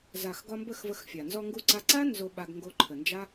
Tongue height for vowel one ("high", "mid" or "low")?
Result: low